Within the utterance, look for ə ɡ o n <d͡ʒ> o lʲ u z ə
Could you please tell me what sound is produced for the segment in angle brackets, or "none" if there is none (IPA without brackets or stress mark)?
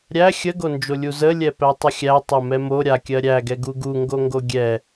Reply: d͡ʒ